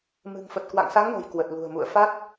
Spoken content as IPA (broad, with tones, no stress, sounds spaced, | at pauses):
m ɨ̤˨˩ ŋ f ə˨˩ t̚ k w a̰˧˨ ŋ s a˨˦ ŋ n o̤˨˩ j k w ə˨˩ t̚ l ṳ˨˩ ə̯ m ṵ˧˨ ə̯ f a˦˥ t̚